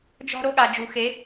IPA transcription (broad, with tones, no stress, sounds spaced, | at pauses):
d͡ʒ ɔ̤˦ ɾ o˦ ɠ a˨ d͡ʒ u˨ x e˨˦